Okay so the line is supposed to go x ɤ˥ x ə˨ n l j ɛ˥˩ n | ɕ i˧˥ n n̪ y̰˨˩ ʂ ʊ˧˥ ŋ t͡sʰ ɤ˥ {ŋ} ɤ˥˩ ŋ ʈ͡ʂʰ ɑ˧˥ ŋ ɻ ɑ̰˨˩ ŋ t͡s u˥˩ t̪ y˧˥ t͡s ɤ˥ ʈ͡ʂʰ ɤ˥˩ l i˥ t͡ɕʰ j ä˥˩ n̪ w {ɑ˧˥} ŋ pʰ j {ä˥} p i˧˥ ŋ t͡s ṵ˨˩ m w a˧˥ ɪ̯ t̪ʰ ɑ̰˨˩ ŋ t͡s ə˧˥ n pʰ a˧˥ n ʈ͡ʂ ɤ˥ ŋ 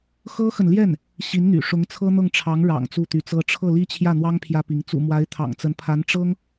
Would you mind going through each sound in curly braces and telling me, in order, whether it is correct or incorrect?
incorrect: n̪, incorrect: ɑ˥, correct

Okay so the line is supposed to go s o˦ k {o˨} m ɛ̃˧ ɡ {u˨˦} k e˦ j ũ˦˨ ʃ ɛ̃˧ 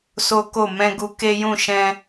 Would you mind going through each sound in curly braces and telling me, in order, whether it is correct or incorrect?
incorrect: o˦˨, incorrect: u˧

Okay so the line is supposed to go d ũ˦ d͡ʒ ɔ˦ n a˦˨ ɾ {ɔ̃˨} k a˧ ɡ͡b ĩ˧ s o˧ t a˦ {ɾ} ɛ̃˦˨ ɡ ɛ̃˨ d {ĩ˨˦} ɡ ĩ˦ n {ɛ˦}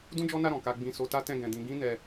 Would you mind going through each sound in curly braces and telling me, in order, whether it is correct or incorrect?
correct, incorrect: t, correct, incorrect: ɛ˧

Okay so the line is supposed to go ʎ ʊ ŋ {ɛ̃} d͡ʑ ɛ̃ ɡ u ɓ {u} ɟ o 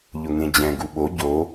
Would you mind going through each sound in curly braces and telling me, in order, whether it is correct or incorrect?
incorrect: ẽ, incorrect: o

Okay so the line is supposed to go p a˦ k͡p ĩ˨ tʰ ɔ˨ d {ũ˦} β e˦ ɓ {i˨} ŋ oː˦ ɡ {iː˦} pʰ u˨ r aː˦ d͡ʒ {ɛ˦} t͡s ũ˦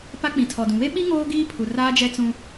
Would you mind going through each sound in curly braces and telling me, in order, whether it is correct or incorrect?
incorrect: ũ˨, incorrect: i˦, correct, correct

